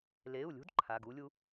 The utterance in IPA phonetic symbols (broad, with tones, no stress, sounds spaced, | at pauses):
l e˩˧˩ u̯ lʲ ṳ˧˥ d ǃʰ a˩˧˩ ɡ u˧˥ lʲ u˧˥